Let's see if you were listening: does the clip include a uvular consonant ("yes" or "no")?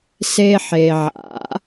no